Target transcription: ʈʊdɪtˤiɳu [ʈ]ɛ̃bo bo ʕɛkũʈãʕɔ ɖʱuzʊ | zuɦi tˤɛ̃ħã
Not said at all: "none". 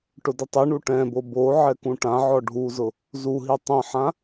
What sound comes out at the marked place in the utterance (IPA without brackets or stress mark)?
ʈ